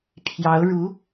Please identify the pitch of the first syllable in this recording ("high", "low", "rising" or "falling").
rising